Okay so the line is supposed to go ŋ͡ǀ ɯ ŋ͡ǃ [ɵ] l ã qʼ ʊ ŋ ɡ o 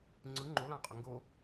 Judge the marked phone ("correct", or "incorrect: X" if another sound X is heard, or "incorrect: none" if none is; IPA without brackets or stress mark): incorrect: o